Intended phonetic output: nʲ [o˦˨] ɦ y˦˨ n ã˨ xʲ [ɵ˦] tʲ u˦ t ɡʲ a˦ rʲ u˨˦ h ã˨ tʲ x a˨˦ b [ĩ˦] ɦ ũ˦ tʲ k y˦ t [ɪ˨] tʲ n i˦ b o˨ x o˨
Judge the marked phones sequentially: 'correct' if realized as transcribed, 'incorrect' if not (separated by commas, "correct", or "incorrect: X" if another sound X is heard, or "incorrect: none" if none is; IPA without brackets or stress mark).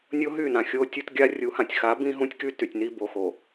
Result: incorrect: o˦, incorrect: o˦, correct, incorrect: y˨